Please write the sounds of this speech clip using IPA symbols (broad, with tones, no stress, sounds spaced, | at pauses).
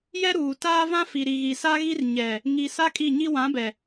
j ɛ˦ ɾ uː˨ t aː˦ v ã˦ f i˨ ɾ i˨ ɣ i˨ s a˦ ɣ i˦ r ɲ ɛ˨ | ŋ i˨ s a˦ kʼ i˦˨ ɲ i˦ w ã˨˦ b ɛ˨